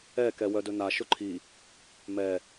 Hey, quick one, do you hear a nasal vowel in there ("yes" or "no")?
no